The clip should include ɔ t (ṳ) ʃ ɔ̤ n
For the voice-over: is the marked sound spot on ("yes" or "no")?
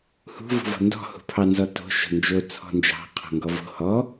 no